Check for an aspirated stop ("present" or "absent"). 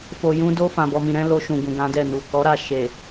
absent